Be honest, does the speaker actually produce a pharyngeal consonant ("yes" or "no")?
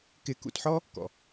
yes